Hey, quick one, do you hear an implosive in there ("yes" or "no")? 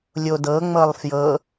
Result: no